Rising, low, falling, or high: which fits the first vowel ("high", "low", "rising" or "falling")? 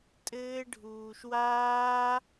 high